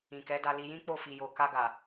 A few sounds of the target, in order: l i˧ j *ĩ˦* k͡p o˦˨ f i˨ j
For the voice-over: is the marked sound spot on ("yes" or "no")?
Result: yes